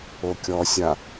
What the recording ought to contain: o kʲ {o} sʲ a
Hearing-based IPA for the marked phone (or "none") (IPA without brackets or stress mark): ɔ